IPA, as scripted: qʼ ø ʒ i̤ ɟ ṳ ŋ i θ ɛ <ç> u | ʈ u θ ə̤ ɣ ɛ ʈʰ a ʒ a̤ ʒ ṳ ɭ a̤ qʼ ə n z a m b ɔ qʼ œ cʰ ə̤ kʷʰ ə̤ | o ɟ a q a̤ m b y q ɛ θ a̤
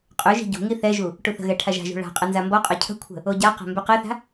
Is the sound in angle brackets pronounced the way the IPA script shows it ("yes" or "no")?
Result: no